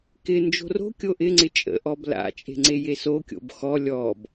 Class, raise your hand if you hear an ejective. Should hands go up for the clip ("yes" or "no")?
yes